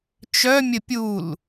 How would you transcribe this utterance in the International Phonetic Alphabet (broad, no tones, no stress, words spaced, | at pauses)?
t͡ʃœmʲə pʲul